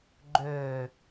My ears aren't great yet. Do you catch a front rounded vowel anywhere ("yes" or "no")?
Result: yes